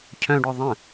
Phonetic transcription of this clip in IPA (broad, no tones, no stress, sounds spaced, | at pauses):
cʰ œ̃ ɖ œ ðˤ ə̃